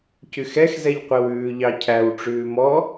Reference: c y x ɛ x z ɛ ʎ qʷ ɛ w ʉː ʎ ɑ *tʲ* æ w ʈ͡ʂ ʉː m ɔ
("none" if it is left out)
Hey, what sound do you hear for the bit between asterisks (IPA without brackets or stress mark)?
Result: cʰ